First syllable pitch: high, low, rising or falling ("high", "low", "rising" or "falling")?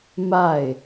falling